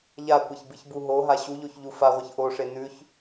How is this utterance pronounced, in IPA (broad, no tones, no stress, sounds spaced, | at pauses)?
ʎ a kʷ ɐ ç b ɨ ç b u ɦ o ɦ a ɕ u ʎ o ç ʎ u f a ʁʷ ɨ ç ʔ o ʂ e n ʉ ç